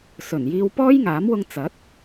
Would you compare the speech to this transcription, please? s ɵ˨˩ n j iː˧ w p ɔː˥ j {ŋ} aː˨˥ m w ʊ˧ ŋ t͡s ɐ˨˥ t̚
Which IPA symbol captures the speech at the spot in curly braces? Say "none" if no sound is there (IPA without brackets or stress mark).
ŋ